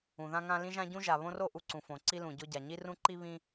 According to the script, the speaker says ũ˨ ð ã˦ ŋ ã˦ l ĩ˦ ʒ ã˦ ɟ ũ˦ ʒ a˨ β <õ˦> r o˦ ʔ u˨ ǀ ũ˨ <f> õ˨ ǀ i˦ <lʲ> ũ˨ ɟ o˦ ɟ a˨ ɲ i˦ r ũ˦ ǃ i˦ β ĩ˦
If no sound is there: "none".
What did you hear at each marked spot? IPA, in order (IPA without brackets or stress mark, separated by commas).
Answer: õ˦, f, l